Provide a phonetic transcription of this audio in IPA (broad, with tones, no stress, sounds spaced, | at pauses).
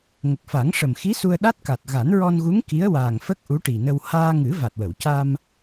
ŋ ə˨˩ k̚ f a˨˩˦ ŋ ʂ ə˨˩ m x i˧˥ s u˧ ə̯ ɗ a˦˥ t̚ k a˨˩ t̚ ɣ a˨˩˦ n ɹ ɔ˧ n ɣ u˧˥ ŋ k i˧˥ ə̯ w aː˨˩ ŋ f ə˦˥ k̚ ʔ u˧˥ ʈ i˨˩ n ə˧ w h aː˧ ŋ ɨ˨˩˦ v a˨˩ t̚ w ə˨˩˨ w c a˧ m